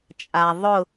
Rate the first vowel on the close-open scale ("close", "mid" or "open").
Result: open